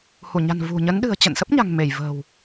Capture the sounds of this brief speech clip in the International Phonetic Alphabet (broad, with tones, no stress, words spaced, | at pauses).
hu˧˩ɲa̤˨˩n vṳ˨˩ɲə˨˦n ɗɨ̤˨˩ə̯ t͡ɕə̰˧˨nsə˦˥p̚ɲa̤˨˩ŋ me˧˩jvə̤ː˨˩w